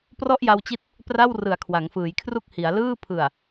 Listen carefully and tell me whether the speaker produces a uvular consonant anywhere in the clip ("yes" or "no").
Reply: no